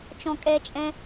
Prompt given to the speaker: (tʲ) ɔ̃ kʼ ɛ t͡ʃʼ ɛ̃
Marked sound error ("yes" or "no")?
yes